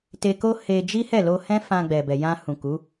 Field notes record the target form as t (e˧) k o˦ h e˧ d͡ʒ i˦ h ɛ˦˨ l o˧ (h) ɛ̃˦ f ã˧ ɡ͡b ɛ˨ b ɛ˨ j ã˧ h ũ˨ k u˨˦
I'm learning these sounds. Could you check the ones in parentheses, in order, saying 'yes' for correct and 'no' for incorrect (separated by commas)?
yes, yes